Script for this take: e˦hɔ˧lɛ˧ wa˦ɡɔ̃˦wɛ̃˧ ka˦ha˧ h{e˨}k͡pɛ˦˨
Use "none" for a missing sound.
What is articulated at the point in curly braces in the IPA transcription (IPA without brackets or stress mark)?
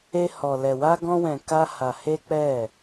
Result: e˦